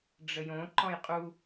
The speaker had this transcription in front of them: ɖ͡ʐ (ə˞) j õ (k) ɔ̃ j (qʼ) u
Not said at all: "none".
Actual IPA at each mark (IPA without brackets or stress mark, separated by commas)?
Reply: ə, ǃ, qʼ